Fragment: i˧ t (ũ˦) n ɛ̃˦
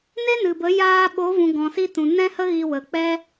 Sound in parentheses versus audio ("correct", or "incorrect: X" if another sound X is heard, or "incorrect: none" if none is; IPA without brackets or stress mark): incorrect: ũ˨